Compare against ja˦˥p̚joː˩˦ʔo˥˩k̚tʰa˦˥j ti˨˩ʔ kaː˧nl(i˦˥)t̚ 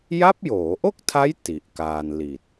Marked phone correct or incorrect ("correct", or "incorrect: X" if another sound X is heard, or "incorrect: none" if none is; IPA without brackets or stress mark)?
incorrect: i˨˩